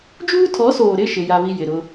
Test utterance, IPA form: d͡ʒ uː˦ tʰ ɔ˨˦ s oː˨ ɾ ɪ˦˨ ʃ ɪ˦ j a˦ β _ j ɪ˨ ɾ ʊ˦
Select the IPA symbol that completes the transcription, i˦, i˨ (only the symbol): i˦